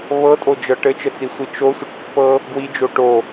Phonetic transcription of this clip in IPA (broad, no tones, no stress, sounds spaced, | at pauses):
β ɤ tʼ o d͡ʒ ɤ ʈ ɘ t͡ʃ ə t͡s i sʷ i t͡ʃ o sʷ ɘ ʈ pː ɤ | ɡ w i d͡ʒ o ʈ o